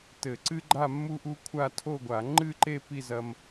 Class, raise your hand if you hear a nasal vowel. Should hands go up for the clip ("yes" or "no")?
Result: no